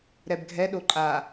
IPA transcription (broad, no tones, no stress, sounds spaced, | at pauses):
ɾ ɛ b ɡʱ ɛ ɗ o ǃʼ a